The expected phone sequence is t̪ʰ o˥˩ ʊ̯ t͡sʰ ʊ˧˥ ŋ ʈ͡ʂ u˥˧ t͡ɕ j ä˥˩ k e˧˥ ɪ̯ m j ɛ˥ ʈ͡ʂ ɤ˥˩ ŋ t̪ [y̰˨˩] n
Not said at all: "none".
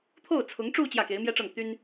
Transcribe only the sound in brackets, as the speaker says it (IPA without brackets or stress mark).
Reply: y˥